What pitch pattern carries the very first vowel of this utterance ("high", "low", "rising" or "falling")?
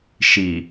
low